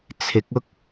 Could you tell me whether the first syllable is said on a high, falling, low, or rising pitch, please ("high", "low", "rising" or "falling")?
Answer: rising